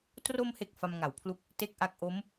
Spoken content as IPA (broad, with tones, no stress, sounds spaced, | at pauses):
t r o˧ m h e˨˩ k̚ f a˧ m ŋ a˩˦ w pʰ l u˦˥ k̚ | t e˥˩ k̚ ʔ a˦˥ k̚ ʔ o˦˥ m